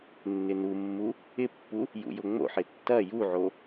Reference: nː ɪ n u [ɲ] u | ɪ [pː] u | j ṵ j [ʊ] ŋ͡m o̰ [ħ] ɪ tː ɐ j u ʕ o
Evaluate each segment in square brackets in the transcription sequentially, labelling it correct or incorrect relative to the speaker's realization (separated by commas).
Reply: incorrect, correct, correct, correct